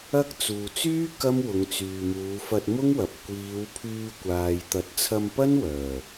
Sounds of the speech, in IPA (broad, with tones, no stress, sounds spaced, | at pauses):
ɐ˥ k̚ t͡s uː˨ t͡s yː˥ k ɐ˥ m w ʊ˨˧ ŋ t͡s yː˨ m uː˨˧ f ɐ˧ t̚ m ʊ˥ ŋ w ɐ˨ p̚ kʷ iː˨˧ w pʰ yː˧ kʷ aː˨ j t̪ ɐ˨˥ t̚ t͡sʰ ɐ˧ m p ɐ˥ n w œː˨˩